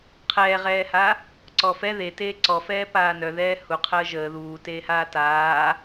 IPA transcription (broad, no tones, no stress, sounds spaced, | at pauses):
qʰ ɛː ʁ ɛː h a | ǀ ɔ f ɛ ð e t eː ǀ ɔ f ɛː p aː n œ ð ɛː h u qʰ əː ʒ əː ð uː t eː h aː t aː